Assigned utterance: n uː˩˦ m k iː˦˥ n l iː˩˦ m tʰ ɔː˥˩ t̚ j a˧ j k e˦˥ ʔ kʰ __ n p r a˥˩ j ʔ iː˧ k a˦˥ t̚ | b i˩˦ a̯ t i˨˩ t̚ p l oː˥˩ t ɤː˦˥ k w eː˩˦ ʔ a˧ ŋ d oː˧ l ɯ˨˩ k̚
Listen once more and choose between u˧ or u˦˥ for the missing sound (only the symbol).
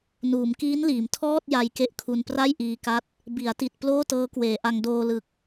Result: u˧